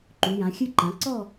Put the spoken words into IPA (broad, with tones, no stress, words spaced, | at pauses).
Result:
ǃu˩˧jã˩˧xʲɨ˥˧ǃã˩˧ ǀɔ˥˧